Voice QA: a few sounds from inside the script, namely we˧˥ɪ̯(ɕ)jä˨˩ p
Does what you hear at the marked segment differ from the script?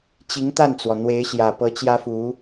no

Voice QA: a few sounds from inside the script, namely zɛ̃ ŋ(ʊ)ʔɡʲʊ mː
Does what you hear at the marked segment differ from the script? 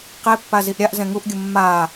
yes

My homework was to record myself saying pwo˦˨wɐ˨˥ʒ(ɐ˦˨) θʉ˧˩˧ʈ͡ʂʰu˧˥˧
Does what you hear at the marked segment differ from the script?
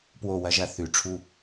no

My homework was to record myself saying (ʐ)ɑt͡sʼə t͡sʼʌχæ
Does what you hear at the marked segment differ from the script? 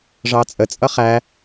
no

